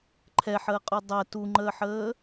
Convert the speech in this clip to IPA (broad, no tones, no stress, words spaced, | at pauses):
ǃʰɛħəːqʼʉ dˤɛ tuŋ͡ǃəːħəː